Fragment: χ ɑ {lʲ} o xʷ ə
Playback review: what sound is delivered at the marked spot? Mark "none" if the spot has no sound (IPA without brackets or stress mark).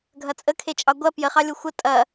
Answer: lʲ